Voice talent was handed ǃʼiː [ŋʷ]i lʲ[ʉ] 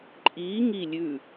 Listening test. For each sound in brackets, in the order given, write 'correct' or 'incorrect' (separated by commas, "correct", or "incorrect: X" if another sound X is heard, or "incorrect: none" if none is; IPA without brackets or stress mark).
incorrect: ŋ, correct